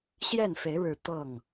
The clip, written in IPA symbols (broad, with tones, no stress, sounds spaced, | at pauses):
ɕ j ɛ˥˨ n f e˨˦ ɪ̯ ɻ ɻ̩˨˦ t̪ ɤ˥˨ ŋ